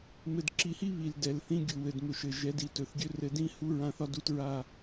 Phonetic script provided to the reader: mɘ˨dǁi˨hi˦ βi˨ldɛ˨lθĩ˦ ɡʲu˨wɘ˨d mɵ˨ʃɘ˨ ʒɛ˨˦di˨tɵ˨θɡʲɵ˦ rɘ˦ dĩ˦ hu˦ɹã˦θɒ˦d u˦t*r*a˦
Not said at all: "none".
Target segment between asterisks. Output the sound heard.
ɹ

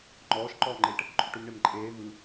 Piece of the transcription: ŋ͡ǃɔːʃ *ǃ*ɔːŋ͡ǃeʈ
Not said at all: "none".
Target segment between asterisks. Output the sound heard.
ǃ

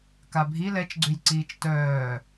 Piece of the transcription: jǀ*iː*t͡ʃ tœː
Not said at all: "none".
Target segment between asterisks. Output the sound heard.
iː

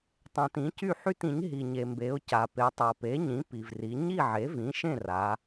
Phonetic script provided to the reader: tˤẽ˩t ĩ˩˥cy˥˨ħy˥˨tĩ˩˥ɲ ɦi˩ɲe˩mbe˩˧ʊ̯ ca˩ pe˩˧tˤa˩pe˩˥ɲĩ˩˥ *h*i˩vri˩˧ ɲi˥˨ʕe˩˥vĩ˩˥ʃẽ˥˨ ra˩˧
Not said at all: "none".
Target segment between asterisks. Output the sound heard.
p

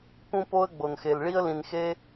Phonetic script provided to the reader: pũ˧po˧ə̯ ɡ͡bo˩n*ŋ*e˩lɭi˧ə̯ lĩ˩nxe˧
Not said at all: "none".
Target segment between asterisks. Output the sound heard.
x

